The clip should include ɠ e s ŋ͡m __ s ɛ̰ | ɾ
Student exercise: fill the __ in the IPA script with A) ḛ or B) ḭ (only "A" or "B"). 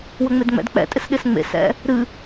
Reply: A